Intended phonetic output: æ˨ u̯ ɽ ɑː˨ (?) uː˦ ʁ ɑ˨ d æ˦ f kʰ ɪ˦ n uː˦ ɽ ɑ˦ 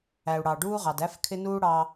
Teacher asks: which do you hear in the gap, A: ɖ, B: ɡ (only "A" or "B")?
A